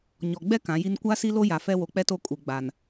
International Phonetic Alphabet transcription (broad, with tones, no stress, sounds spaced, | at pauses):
ɲ ɔ˨ ɡ͡b ɛ˦ k ã˨˦ j i˦ n kʷ aː˦ s i˦ l o˦ j a˨ f ɛ˦ w o˨ k͡p ɛ˦ t o˦ kʼ u˨ ɡ͡b a˨ n